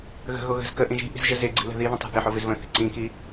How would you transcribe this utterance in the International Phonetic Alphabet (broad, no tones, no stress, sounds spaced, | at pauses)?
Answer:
ɣ ə̤ ɣ o ɣ ə̤ z k ə ʔ ĩ ʒ i̤ ʔ i̤ z ʒ ə z ɪ ɡ͡ǀ i̤ l ə̤ ð i ð ə̃ tˤ a̤ θ ɪ ħ o v ɪ z v ə̃ θ i̤ ǀ ĩ k i